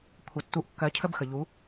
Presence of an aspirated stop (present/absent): present